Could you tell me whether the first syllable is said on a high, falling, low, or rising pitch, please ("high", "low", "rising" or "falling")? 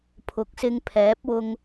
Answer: rising